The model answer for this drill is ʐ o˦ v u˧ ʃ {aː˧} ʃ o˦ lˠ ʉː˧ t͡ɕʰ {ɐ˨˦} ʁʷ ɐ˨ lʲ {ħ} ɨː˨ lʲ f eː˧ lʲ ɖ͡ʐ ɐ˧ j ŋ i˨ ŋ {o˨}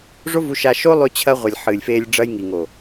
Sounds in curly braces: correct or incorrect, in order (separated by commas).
incorrect, incorrect, correct, correct